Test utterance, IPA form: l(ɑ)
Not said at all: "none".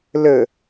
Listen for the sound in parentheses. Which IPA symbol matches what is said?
ə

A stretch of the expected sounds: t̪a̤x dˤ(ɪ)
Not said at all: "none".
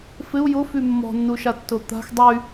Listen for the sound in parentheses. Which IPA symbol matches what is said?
y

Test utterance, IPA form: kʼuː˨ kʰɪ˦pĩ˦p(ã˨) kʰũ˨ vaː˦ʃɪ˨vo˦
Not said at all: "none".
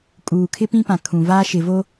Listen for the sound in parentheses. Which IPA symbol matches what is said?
ã˨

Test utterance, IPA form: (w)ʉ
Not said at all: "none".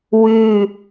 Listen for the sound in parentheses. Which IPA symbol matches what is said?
w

